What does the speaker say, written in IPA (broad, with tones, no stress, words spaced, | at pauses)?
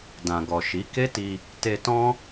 dã˨ɡɔ˨ʃi˨˦ ke˦ti˧ | te˧tɔ̃˦